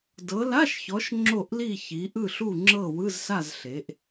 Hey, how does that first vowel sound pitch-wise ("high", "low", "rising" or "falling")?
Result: rising